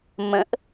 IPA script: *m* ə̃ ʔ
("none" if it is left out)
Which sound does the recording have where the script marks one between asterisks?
m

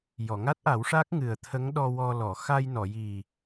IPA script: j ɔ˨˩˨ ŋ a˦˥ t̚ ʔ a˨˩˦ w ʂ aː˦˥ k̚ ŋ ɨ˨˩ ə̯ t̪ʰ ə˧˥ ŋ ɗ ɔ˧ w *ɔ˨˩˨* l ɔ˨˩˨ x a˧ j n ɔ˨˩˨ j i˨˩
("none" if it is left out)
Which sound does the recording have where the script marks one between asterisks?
ɔ˧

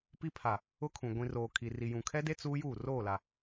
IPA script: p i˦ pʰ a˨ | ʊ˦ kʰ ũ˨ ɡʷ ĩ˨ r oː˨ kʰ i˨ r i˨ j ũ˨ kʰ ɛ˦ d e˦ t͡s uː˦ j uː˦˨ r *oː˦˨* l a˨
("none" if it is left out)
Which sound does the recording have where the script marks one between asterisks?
oː˦˨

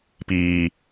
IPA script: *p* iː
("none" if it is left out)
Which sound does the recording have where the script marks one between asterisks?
p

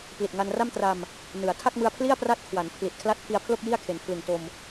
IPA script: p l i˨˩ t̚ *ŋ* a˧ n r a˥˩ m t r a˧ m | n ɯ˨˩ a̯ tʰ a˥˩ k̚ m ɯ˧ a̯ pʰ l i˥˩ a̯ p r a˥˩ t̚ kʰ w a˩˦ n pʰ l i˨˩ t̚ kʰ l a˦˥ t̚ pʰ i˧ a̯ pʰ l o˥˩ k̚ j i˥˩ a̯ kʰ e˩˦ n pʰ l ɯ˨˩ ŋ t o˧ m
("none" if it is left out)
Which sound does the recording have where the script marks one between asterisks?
ŋ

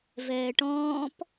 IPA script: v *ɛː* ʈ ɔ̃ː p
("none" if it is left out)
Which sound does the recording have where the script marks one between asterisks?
ɛː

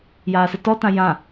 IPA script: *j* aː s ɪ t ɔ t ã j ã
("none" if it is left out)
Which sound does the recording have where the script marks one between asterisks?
j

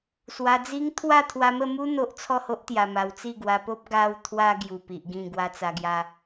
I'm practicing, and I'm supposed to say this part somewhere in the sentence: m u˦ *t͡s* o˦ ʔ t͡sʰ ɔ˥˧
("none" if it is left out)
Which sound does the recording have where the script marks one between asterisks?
n̪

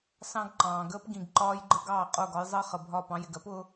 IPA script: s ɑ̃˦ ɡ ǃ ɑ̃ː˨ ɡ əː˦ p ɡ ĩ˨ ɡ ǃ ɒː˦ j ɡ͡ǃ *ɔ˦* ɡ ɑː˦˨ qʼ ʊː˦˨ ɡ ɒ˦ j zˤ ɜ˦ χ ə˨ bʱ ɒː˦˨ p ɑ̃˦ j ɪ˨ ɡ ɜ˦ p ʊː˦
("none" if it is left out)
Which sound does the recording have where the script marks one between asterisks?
ə˦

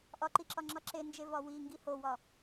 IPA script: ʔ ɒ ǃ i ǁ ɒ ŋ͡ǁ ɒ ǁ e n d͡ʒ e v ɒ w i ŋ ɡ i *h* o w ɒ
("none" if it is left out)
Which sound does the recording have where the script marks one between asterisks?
h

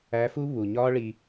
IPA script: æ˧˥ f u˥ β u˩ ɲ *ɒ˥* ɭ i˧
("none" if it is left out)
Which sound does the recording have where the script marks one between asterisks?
ɒ˥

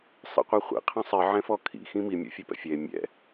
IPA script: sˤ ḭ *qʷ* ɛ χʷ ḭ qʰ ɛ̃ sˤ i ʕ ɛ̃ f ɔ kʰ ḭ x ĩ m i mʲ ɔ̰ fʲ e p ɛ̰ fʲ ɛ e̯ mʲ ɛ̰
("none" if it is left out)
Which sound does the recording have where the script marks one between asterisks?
qʷ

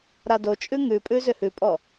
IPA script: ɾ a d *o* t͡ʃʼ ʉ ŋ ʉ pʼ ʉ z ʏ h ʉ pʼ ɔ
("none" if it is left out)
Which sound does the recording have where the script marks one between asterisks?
o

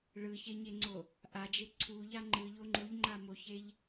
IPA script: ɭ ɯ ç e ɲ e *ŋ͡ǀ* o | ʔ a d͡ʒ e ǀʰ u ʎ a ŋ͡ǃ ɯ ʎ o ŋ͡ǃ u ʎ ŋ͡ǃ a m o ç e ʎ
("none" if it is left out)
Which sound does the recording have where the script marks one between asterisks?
ŋ͡ǀ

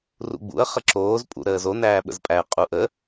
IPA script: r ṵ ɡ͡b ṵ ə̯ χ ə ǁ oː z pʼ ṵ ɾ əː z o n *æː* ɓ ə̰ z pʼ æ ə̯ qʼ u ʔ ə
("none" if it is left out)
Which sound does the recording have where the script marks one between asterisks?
æː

